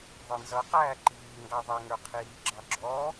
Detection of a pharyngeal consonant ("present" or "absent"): absent